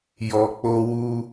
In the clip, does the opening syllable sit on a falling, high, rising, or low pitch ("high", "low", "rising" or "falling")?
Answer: low